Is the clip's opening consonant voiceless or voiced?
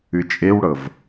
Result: voiceless